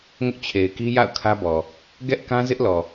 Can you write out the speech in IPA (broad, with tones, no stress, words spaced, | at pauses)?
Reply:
ŋʊ˦ʔt͡ɕʰe˨ɪ̯ki˦ ja̰˦˨ʊ̯ kʰä˦bɔ˨ | ɡɛ˦ʔkã˦ zɪ˦ʔlɔ˨